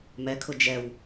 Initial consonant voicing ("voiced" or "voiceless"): voiced